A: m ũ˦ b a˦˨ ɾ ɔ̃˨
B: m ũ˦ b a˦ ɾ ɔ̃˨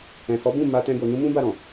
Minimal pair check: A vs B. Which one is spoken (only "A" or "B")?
A